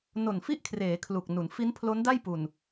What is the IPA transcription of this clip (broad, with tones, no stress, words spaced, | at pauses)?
no˨˩nfi˥˩ʔkʰreː˩˦ kʰlu˨˩k̚nu˩˦n fi˦˥npʰlo˦˥nda˥˩j pu˨˩n